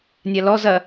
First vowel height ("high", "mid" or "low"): low